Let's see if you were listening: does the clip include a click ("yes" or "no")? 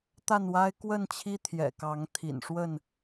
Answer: no